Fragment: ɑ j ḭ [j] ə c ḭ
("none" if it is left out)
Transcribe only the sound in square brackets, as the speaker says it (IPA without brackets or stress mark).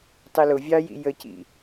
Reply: j